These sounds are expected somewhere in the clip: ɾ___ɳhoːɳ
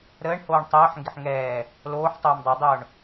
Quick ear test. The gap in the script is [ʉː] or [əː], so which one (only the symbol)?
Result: əː